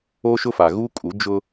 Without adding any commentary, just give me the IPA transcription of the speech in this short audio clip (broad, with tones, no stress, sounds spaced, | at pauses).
o˦ ʃ ʊ˦ f a˨ ɣ u˦ kʼ u˨˦ d͡ʒ ʊ˦